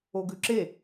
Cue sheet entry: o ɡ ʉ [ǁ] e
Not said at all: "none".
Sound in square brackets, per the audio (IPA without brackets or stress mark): ǁ